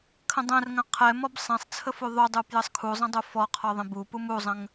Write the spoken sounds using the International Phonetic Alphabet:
kʰə̃dˤɛ̃rŋə̃ qʰɛ mɔbsˤɛ̃sˤt͡sʰə fuðˤudˤu pjəsˤkʰuzˤə̃ dˤufɔqʰɔ ðˤə̃bupum uzˤə̃ŋ

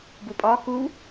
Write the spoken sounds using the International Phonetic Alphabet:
bupʼɒ ku

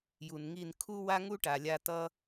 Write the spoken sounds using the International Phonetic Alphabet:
ju˨nŋi˦˨n kʰu˦ wa˦ŋu˦ʈa˨lʲa˧ tʌ˦

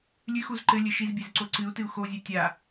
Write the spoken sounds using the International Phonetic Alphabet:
lʲɨxuz ǃɘlʲɘ ʃizbʲezǀo ǀɨu̯tɨu̯ xozʲɛ tʲa

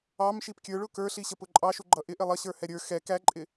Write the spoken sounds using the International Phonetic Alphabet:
ɑmʃip kʲə˞ɭʊ kə˞ɬiɕəpʊ ǃʼɑʃuɡ͡ǃʌ ʔɪʔɪ lˠʌɕə˞hɛ ɾʲə˞ xɛ kæǃʼɪ

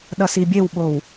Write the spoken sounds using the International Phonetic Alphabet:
ɗʌsibʲewɓow

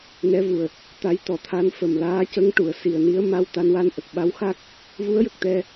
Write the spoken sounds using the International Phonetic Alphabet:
nɛ˧˥vu˨˩ə̯ | t̪a˧˥j t̪ɔ˨˩t̪ʰa˧˥n fə˨˩mlaː˧˥cə˧˥ŋ ʈu˨˩˨ə̯si˨˩ə̯ni˧˥ə̯ ma˧wt̪a˧n wa˧nʔə˨˩k̚ɓa˧˥wxa˦˥k̚ | vu˧˥ə̯jə˨˩k̚t̪ɛ˧

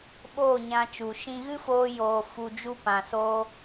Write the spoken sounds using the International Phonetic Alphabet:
ɓoː˦˨ɲã˧ t͡ʃu˨ʃĩ˧ ɣɨ˦foː˧joː˨ fu˧d͡ʒu˦pã˨ so˧

